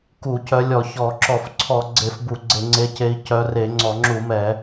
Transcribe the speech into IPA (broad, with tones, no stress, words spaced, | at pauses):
ku˧˩˧cœ˨˦lʲɔ˧˩˧çɔ˧˩˧ ǁɔ˧˩˧fǀʰɔ˧˩˧ ɡ͡ǀe˧˩˧f bu˧˩˧ɡ͡ǀe˧˩˧ŋ͡ǀe˨˦ce˨˦i̯ cœ˨˦re˧˩˧ ŋ͡ǀɔ˧˩˧ŋ͡ǁu˧˩˧mɛ˧˩˧